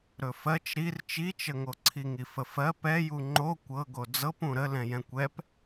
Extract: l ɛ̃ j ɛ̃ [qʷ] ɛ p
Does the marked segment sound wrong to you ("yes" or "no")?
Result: yes